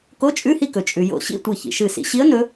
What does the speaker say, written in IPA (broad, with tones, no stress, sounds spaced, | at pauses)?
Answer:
k o˧˥˧ t͡ʃʼ ʉ˧˥˧ h i˥˨ k ɵ˩ t͡ʃʼ ʉ˩ j o̰˧˩ ɕ ḭ˥˨ tʷ i˧˩ ç ḭ˩ ʃ ɨ˧˩ s ḭ˩˧ ɕ i˧˥ ə̯ n ɵ˧˥